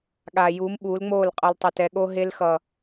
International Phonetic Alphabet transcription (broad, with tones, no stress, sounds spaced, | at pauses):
ɠ aː˨ j uː˨˦ m ɓ uː˨˦ l ŋ͡m oː˦˨ l qʼ ʌ˨ l tˤ ʌ˨ t ɛ˨ ɠ o˧ ɦ e˧ l x ʌ˨